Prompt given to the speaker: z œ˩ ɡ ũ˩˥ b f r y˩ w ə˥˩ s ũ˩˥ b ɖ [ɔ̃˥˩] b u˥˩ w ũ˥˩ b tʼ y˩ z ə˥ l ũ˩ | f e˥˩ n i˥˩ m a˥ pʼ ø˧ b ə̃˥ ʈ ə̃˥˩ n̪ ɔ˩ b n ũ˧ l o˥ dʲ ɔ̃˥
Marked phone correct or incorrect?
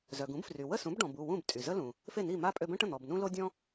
incorrect